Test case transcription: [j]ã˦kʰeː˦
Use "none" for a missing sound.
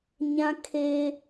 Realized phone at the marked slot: ɲ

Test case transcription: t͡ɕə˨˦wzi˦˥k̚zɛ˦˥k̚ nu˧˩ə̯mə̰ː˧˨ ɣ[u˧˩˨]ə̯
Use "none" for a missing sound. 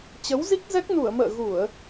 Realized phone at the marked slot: u˧˩˨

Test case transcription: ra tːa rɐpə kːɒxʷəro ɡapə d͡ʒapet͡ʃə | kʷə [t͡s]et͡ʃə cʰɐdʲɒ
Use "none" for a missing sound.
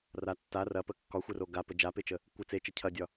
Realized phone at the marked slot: t͡s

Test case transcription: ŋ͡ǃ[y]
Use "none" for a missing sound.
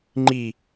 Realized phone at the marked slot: i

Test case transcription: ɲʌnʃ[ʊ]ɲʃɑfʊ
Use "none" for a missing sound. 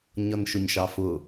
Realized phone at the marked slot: ʊ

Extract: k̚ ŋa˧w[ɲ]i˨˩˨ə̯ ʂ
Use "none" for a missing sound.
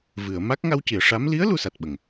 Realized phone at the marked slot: c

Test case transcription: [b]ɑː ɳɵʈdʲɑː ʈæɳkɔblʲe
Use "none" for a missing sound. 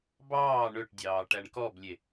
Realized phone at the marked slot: b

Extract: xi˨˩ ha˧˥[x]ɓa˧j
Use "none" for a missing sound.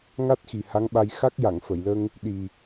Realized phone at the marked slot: ŋ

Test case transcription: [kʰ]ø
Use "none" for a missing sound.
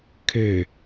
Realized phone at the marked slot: kʰ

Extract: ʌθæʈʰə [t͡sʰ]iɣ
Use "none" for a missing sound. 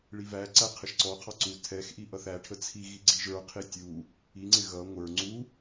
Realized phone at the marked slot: t͡sʰ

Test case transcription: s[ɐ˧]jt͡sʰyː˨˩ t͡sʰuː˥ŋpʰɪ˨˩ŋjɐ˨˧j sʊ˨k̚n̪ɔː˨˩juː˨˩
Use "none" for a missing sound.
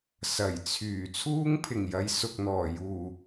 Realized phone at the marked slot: ɐ˨˩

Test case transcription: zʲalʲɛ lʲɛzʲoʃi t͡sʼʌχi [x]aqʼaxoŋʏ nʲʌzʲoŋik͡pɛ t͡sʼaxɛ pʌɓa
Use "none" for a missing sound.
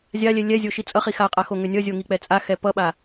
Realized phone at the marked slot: x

